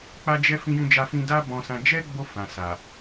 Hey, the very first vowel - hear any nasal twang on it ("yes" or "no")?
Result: no